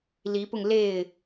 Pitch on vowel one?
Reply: rising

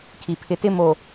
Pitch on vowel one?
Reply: low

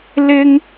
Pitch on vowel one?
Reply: high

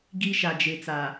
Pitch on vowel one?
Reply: high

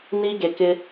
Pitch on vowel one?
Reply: high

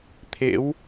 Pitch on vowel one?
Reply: rising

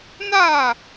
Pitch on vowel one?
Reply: falling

